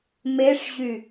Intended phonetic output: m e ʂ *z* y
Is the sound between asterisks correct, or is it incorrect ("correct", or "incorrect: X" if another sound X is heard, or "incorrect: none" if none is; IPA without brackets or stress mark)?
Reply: incorrect: ʑ